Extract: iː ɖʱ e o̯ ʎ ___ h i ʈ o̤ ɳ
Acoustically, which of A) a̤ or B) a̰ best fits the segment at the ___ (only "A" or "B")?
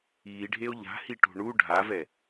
A